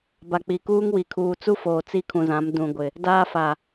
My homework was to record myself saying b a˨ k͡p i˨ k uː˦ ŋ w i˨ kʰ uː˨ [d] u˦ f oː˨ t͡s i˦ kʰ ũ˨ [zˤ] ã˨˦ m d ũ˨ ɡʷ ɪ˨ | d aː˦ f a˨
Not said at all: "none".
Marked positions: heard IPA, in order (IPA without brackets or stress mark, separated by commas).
t͡s, z